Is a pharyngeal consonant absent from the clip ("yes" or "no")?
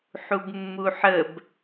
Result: no